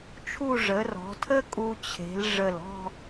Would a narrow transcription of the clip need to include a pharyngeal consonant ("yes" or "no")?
no